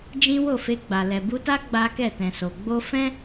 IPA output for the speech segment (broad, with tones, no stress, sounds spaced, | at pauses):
d͡ʒ ĩ˦ w o˦˨ f e˧ ɡ͡b a˨ l ɛ˨ b u˧ t a˦ ɡ͡b a˦ k ɛ˦˨ t ɛ̃˨ s o˨ ɡ͡b o˧ f ɛ̃˦